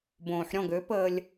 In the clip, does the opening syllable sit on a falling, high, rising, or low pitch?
low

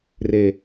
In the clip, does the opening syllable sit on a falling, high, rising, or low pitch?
low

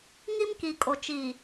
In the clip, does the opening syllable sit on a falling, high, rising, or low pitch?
high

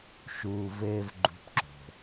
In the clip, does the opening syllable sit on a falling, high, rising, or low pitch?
low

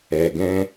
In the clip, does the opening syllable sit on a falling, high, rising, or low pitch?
low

